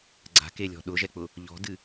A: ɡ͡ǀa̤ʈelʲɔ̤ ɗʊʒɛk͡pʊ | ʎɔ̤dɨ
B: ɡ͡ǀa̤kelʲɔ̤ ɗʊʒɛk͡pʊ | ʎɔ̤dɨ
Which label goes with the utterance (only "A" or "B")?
B